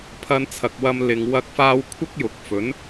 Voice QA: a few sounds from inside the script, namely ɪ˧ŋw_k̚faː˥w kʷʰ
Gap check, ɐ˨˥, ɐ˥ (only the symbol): ɐ˥